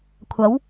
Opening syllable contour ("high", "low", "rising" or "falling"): rising